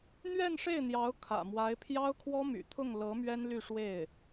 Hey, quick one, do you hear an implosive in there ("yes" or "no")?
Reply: no